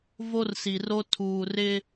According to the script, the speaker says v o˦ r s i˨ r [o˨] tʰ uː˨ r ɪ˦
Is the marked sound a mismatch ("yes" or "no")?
yes